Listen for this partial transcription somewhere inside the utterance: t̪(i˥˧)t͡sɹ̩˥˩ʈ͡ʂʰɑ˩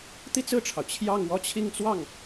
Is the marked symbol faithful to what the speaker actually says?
yes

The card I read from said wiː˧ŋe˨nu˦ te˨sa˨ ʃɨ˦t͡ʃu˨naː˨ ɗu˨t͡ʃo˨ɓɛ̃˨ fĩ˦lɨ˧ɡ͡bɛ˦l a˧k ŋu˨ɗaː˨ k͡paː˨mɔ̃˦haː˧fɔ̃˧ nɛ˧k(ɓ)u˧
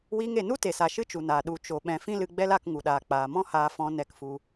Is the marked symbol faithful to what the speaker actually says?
no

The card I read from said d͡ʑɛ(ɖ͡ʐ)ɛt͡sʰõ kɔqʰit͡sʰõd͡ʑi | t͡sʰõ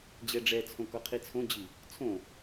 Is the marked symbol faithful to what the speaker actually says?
yes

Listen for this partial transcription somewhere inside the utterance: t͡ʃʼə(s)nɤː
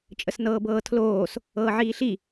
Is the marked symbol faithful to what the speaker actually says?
yes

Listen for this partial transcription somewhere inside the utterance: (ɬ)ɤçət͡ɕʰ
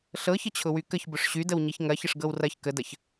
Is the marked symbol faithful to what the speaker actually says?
yes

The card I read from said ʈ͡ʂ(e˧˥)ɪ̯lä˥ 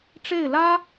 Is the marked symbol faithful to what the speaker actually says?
no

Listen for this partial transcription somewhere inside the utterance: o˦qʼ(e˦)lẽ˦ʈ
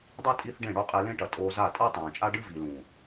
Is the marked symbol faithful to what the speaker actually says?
no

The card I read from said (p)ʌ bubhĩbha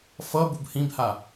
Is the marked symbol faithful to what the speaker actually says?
no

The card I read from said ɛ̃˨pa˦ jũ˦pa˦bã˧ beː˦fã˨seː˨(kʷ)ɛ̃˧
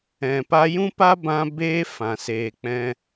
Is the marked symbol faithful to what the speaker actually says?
no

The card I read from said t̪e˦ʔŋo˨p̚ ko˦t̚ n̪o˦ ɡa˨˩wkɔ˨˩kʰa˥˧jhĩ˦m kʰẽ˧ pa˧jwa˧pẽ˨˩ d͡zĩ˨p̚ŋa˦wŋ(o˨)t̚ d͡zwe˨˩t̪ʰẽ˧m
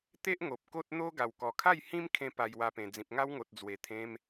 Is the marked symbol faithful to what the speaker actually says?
yes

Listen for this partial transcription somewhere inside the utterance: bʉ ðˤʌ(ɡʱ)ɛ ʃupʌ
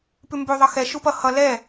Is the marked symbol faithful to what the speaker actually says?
no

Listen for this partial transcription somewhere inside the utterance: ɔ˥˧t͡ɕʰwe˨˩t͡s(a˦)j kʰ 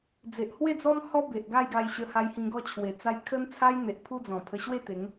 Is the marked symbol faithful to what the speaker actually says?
yes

